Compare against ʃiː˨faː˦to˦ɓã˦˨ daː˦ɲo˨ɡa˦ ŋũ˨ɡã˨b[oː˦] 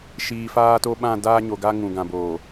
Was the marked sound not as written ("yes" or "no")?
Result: yes